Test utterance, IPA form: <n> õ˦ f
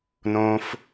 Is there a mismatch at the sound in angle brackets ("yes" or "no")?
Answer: no